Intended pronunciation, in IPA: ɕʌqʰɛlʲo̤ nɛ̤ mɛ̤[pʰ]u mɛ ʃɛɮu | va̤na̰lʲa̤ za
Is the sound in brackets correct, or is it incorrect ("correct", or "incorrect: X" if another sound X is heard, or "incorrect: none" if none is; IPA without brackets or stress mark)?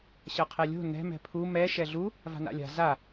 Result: correct